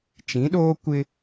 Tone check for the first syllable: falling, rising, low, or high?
rising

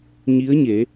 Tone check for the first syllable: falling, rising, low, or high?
rising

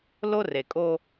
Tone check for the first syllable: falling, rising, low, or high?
high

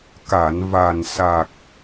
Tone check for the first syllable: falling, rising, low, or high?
low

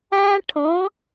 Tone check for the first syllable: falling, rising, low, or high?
high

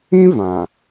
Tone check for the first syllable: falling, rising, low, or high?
high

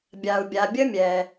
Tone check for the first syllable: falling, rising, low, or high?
low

